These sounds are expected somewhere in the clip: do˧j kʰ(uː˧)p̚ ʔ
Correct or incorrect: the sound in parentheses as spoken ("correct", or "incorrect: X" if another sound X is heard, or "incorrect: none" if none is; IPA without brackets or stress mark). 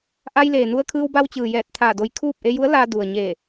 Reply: incorrect: uː˥˨